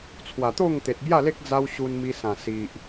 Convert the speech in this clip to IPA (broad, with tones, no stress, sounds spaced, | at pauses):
t͡sʰ w a˨˩ t̪ o˥˧ ŋ t̪ e˨ t̚ b j a˥˧ l e˦ k̚ d͡z a˦ w ɕ u˧ n m i˧ s ã˨˩ s i˨ ʔ